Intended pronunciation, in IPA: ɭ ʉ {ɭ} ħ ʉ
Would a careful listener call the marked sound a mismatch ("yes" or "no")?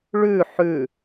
yes